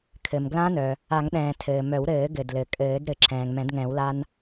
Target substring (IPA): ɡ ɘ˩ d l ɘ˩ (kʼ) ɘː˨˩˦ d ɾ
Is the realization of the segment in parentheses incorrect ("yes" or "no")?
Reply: no